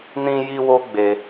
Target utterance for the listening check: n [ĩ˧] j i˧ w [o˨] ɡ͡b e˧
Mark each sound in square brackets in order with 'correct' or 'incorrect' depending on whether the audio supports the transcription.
correct, incorrect

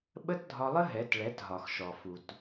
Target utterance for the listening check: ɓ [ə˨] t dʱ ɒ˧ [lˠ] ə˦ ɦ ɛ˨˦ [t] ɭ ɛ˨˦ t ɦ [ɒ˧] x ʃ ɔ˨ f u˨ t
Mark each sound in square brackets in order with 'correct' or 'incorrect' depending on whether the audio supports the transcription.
incorrect, correct, correct, incorrect

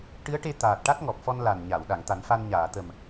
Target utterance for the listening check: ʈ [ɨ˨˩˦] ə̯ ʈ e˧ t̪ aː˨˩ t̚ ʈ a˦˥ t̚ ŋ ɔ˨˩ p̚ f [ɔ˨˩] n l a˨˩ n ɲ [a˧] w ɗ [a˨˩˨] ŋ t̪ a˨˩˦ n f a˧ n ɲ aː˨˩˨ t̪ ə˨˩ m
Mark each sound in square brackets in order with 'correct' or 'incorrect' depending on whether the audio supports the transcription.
incorrect, incorrect, incorrect, correct

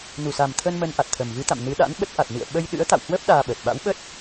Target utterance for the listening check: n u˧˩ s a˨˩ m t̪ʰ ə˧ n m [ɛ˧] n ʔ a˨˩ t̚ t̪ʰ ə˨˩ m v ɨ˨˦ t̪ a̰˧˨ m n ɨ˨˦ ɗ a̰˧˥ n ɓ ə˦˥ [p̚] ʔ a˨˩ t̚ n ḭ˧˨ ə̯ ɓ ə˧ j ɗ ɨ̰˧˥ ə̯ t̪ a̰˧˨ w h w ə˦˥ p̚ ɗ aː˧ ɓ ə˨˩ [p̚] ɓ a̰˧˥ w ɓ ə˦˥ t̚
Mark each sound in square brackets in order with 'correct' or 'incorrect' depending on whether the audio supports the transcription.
incorrect, incorrect, incorrect

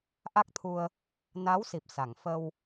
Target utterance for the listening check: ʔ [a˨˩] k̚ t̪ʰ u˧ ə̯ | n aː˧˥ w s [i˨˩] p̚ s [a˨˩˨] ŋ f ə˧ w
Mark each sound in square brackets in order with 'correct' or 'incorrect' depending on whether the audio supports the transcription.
incorrect, correct, correct

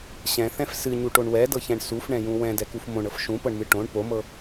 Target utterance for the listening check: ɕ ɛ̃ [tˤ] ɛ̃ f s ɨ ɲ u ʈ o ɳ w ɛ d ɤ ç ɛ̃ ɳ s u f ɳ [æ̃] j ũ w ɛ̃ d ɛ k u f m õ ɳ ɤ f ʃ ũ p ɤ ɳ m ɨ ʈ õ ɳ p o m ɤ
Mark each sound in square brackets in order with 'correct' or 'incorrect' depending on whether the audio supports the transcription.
incorrect, incorrect

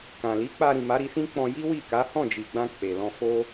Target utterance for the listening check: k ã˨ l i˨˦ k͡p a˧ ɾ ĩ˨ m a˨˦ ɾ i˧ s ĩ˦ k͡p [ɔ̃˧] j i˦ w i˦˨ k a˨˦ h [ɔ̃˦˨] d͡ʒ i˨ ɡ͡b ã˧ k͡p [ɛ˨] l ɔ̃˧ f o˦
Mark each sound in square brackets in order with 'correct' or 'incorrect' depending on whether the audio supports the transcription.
correct, correct, incorrect

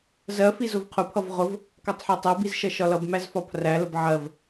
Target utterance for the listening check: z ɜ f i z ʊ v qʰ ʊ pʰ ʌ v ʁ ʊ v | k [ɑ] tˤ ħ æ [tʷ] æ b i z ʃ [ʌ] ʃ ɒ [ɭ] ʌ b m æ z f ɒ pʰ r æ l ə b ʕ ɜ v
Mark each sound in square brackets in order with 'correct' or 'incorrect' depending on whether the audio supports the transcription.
correct, incorrect, correct, incorrect

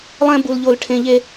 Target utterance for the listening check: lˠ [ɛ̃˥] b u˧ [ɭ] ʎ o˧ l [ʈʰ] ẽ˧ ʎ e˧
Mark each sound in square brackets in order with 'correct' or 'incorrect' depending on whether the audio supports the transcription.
correct, incorrect, correct

